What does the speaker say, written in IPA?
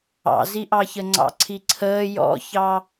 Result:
ɑ̰ z i ʔ ɑ ç ə ŋ͡ǀ ɑ̰ ǀʰ i ǀʰ əː j ɔ̰ ç ɑ

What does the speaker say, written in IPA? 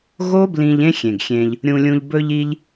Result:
ɣ oː˦ b l ĩ˧ ʎ ẽ˦ xʲ ẽ˨ ɡ xʲ ẽː˧ ʎ | ɾʲ ũ˧ lʲ ũ˧ ʎ b ɵ˧ ʎ i˧ ʎ

